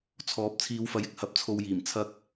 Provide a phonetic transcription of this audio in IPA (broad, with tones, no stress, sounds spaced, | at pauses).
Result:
t͡sʰ ɔː˨˥ p̚ t͡sʰ iː˨˧ w f ɐ˨ j ɪ˨ k̚ h ɐ˨˥ p̚ t͡sʰ o˧ w j iː˨˩ m t͡sʰ ɐ˧ k̚